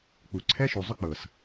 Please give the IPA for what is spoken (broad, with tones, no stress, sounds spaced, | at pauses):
k͡p u˨ ǀʰ ɛ˦ ʃ u˨ zˤ ʏ˦ k͡p ɤ˨ s